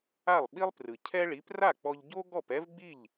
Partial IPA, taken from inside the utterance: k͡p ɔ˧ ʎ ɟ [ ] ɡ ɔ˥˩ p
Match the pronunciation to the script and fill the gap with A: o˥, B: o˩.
A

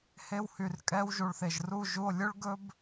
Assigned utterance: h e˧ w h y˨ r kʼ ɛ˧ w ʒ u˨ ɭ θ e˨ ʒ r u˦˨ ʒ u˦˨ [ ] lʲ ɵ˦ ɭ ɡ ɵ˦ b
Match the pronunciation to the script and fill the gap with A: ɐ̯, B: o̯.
B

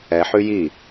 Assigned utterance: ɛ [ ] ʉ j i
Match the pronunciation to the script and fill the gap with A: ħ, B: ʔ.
A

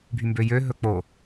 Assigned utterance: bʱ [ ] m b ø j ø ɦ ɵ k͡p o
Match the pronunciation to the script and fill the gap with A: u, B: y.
B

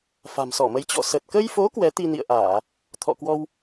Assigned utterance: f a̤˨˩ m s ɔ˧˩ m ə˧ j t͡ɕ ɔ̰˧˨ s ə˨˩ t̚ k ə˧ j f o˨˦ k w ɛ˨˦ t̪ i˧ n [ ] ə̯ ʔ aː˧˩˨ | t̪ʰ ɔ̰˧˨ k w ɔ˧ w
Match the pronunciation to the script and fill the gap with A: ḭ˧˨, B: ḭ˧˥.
A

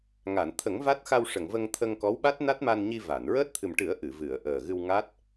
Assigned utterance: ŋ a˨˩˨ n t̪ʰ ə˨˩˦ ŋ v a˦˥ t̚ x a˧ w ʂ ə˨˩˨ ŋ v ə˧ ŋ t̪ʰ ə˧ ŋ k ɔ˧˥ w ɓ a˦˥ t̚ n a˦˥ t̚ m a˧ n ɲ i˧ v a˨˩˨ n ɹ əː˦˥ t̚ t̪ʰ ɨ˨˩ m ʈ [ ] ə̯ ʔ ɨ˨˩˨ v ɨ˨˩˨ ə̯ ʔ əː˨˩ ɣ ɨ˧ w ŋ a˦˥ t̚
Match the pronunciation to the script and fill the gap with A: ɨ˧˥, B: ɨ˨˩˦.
B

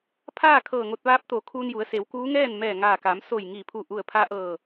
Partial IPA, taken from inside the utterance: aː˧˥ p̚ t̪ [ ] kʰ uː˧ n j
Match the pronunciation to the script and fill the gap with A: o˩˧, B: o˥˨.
A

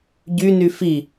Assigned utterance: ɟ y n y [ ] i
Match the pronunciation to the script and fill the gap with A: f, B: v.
A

